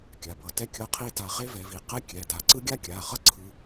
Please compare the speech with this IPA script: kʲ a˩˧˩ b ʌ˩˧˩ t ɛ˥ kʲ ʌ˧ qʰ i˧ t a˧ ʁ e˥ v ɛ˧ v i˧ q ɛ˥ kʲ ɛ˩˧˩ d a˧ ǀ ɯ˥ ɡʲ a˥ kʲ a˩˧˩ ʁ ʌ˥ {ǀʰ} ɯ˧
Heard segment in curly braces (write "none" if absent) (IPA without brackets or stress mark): ǀʰ